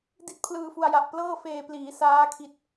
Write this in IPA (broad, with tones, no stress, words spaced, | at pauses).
di˥˩t̚pʰlɯː˧fu˧a̯ja˨˩ʔ plɤː˥˩feː˧ pliː˩˦saː˦˥kʰi˨˩t̚